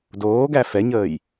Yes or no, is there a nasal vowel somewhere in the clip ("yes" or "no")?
no